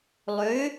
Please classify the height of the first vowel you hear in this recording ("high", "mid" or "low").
mid